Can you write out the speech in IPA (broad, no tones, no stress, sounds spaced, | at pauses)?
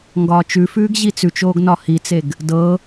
ŋ ɡ ɒː t͡ʃ ʉ f ʉː ɡ ʑ i t͡s ʉ t͡ʃ oː ɡ n ɒ h i t͡s e ɡ | d ɤ